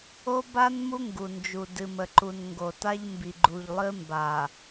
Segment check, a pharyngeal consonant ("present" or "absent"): absent